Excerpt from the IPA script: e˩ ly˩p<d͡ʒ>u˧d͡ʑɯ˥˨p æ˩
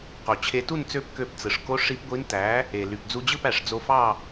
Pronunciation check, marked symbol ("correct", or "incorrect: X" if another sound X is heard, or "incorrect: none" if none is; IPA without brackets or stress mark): incorrect: d͡z